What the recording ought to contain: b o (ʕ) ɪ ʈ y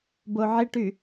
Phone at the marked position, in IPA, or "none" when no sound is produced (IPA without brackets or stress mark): ʕ